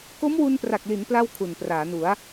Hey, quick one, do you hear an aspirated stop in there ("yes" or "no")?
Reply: yes